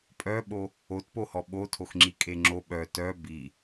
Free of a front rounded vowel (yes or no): no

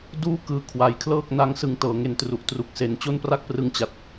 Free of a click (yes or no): yes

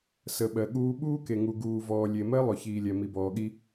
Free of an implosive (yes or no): no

